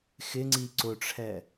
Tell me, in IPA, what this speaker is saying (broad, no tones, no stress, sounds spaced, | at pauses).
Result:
x ɪ ŋ͡ǀ i ǀ ʊ ʈ͡ʂʰ ɛ